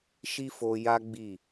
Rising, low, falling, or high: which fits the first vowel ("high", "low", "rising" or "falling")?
high